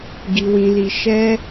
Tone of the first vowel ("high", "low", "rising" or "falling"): low